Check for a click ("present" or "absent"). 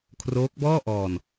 absent